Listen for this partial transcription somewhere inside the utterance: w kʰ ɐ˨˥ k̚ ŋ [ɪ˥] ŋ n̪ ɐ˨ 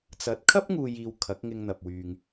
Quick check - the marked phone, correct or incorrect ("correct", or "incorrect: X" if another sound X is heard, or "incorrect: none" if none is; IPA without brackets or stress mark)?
incorrect: ɪ˧